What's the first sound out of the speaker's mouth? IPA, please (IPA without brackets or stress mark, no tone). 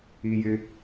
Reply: i